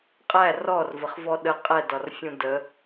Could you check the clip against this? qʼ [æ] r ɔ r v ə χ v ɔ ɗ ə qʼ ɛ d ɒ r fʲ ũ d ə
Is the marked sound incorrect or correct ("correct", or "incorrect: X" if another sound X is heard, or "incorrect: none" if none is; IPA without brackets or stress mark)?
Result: correct